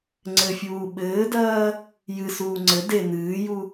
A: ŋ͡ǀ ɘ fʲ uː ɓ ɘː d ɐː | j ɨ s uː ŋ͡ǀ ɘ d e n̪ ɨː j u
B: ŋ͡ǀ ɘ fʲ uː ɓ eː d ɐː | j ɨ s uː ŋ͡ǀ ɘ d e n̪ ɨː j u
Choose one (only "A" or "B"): A